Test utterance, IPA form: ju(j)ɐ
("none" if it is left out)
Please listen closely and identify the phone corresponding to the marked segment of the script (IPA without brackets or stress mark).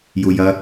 j